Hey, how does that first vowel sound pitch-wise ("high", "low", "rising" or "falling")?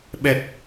low